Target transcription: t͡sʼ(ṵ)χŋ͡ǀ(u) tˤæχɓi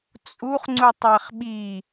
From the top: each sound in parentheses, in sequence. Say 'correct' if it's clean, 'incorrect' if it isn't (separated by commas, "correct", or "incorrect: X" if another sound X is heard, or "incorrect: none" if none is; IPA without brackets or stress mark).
incorrect: u, correct